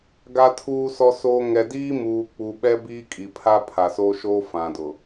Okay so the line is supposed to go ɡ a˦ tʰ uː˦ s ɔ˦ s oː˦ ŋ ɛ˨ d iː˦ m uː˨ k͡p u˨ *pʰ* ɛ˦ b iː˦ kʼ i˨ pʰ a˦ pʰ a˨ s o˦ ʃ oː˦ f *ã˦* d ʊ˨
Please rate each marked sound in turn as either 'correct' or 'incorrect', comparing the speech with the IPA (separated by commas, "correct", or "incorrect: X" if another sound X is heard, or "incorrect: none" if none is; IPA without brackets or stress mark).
incorrect: ɓ, incorrect: ã˨